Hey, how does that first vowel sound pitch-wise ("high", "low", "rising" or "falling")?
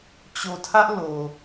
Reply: low